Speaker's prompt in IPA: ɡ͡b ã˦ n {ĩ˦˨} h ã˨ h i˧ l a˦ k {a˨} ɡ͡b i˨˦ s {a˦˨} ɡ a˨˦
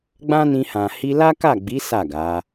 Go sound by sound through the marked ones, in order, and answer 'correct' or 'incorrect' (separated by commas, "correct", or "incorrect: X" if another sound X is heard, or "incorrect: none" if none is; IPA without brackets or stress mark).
incorrect: ĩ˧, incorrect: a˦˨, correct